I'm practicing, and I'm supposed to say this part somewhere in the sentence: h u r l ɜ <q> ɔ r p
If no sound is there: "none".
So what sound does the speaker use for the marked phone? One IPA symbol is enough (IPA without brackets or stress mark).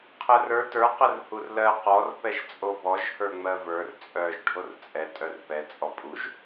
q